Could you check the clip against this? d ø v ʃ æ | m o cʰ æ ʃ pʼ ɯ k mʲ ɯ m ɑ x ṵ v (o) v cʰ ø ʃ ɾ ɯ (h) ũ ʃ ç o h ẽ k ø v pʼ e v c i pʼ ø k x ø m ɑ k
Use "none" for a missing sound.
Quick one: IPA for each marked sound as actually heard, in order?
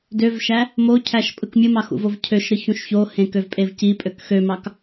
o, ç

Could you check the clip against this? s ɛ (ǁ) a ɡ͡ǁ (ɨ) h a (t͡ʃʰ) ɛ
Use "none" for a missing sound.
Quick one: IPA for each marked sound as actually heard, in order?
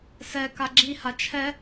k, i, t͡ʃʰ

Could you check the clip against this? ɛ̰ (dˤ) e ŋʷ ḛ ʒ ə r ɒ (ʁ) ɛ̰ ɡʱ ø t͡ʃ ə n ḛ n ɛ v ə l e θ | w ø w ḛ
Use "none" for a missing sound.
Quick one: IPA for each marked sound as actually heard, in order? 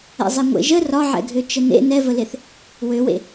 zˤ, ʕ

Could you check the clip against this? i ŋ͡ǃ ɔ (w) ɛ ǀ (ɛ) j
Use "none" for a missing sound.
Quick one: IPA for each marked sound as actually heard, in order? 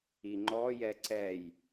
j, ɛ

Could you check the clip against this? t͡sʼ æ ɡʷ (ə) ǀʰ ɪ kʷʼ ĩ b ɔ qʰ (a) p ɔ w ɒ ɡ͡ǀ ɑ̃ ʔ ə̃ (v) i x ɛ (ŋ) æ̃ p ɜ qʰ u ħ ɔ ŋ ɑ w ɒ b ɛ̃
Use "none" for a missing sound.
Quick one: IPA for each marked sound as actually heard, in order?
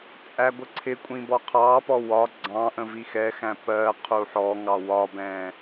ə, ɑ, v, x

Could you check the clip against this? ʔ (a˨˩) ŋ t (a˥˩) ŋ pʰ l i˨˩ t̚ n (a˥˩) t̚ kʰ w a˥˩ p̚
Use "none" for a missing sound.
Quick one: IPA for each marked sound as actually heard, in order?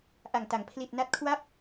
a˨˩, a˩˦, a˦˥

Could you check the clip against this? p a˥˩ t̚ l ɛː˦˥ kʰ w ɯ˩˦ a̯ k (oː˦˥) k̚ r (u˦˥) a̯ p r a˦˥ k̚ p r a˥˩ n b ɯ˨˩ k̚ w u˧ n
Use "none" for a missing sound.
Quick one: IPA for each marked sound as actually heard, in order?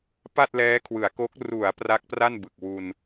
o˦˥, u˩˦

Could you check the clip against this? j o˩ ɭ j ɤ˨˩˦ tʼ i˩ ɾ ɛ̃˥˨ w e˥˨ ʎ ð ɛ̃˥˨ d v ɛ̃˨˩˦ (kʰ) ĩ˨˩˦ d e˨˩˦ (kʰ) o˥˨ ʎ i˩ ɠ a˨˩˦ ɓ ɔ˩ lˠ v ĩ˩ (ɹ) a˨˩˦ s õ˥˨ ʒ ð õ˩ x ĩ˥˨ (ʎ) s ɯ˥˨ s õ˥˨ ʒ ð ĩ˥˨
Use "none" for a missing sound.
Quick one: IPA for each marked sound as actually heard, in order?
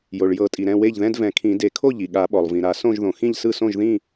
kʰ, kʰ, ɾ, ʎ

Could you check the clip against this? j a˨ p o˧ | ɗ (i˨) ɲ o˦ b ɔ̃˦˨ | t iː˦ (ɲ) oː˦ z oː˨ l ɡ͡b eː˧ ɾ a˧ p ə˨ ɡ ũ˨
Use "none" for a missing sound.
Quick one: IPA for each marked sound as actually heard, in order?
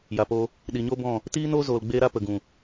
i˨, n

